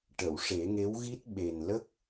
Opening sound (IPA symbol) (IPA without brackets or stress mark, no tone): ʈ